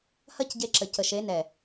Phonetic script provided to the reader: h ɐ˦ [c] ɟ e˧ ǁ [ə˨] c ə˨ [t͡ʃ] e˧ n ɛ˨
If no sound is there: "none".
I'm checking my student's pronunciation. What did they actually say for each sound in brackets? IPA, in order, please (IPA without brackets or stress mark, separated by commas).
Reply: c, ə˨, ʃ